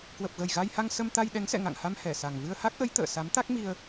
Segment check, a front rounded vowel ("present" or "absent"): absent